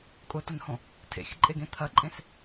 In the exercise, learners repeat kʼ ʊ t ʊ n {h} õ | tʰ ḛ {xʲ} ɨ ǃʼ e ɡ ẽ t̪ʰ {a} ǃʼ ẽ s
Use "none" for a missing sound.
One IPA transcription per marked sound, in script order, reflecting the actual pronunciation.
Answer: h, xʲ, ɐ

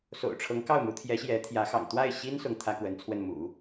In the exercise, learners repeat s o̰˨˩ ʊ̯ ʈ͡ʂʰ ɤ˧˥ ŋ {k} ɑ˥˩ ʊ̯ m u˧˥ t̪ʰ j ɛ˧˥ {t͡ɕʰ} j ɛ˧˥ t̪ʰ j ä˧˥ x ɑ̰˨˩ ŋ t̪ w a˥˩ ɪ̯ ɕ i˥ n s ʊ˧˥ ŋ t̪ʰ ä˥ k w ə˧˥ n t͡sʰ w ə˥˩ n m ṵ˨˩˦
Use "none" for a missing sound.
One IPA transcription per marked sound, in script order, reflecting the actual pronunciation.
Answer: k, ɕ

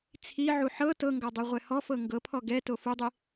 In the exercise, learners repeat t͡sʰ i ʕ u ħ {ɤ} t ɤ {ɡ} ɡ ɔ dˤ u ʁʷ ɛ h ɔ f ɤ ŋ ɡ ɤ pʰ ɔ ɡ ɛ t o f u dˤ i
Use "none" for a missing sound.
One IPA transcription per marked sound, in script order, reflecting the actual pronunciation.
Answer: ɤ, ŋ

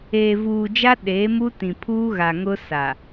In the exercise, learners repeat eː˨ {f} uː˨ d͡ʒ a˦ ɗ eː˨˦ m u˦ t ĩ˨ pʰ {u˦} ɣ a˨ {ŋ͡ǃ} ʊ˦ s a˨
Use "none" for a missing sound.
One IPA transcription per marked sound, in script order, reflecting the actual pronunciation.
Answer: v, uː˦, ŋ

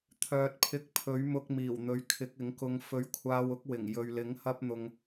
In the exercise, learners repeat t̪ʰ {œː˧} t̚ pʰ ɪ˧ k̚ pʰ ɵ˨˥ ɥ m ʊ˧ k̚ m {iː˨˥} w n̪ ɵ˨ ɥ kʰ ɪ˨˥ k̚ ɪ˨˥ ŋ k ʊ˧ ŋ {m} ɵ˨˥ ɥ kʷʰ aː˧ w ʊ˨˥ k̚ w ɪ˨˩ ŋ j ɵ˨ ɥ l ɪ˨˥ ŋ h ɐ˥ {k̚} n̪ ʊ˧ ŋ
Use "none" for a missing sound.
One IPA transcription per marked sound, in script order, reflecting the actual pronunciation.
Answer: œː˨, iː˨˩, f, p̚

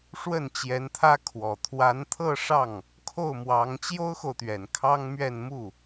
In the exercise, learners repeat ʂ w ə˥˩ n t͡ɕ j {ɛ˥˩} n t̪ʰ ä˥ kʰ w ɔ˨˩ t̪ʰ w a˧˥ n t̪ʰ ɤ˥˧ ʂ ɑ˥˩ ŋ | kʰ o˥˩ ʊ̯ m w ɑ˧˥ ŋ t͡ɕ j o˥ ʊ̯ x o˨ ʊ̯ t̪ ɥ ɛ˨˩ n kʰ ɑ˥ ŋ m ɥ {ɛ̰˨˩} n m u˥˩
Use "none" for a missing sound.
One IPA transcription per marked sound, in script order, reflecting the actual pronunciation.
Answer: ɛ˧˥, ɛ˥˧

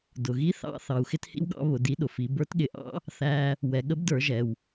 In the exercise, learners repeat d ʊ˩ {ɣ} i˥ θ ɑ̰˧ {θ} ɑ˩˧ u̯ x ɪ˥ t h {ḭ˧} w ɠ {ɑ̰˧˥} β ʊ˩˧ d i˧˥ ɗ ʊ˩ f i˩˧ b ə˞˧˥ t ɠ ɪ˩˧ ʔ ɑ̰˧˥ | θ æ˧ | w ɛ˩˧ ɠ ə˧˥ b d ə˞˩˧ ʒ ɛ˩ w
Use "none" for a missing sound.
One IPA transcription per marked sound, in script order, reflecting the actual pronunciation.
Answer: ɣ, θ, ḭ˥, ɑ̰˧˥

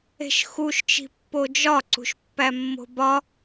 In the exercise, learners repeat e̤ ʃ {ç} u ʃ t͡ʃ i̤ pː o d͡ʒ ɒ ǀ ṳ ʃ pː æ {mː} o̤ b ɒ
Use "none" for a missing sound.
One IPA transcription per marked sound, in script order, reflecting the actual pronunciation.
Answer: x, mː

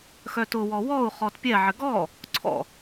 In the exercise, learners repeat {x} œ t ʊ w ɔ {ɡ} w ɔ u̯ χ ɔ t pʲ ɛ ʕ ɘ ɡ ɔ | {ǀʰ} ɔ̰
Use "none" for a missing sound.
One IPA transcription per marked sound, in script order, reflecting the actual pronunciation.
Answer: x, none, ǀʰ

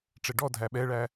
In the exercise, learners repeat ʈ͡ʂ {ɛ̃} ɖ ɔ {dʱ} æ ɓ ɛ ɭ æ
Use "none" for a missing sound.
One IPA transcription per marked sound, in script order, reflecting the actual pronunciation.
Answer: ɛ, dʱ

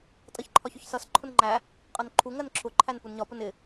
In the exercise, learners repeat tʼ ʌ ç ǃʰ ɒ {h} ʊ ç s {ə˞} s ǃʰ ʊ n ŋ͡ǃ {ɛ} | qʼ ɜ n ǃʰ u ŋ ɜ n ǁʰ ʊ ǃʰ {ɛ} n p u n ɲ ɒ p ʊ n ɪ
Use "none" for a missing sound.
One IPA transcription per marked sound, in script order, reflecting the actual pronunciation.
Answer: ç, ʌ, æ, æ

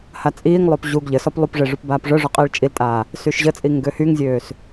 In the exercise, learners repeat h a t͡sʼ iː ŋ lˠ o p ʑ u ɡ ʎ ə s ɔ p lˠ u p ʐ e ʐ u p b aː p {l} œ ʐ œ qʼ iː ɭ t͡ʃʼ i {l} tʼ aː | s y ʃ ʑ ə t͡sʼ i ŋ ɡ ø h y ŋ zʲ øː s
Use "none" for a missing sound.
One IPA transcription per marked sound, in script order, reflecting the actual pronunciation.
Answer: ʐ, l

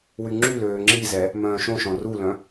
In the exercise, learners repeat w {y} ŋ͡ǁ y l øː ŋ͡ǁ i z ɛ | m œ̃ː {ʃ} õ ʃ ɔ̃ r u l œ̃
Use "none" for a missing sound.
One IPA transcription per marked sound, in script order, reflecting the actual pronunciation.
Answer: y, ʃ

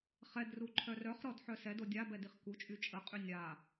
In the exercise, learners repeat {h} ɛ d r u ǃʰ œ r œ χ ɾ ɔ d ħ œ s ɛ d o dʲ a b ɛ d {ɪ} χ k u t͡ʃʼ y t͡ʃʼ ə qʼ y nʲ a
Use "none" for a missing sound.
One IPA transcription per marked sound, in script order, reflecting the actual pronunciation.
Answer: χ, i

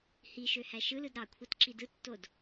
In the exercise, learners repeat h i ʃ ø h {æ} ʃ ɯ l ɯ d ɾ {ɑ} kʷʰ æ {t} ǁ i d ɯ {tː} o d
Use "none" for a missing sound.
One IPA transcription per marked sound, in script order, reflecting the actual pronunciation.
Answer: æ, ɑ, t, tː

